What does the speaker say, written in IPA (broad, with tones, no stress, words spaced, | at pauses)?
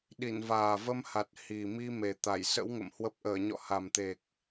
ɗi˧˩nvaː˨˩və˧mha˨˩t̚ hi˨˩mi˧ me˨˩t̪a˧˩j sə̰˧˥wŋə̰˧˨m hwə˦˥p̚ ʔəː˧˩ɲɔ̰˧˨ha˨˩mt̪e˨˩k̚